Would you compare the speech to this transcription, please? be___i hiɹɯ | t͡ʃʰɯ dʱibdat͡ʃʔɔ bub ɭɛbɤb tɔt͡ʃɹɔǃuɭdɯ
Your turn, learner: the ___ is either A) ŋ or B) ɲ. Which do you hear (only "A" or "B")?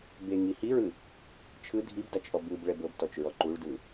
A